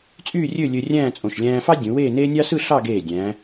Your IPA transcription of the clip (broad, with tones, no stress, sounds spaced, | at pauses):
t͡sʼ yː˥˧ rʲ ø˥˧ lʲ ø˧ rʲ æ̃ː˥˧ t͡sʼ õ˧˩ ʃ lʲ æ̃ː˧ f ɑ˥ dʲ ũ˩˧ w eː˥˧ n eː˥ nʲ ɑ˥ s ɯ˥˧ ɬ ɑ˥˧ ɡ eː˧˩ dʲ æ̃ː˩˧